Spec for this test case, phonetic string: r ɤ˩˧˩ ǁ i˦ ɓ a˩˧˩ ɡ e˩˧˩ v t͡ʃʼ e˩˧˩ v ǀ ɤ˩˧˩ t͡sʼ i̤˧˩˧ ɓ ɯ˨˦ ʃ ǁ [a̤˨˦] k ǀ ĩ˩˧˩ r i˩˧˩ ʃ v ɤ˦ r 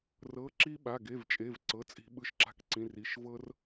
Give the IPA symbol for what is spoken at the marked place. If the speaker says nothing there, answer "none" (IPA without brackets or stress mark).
a̤˧˩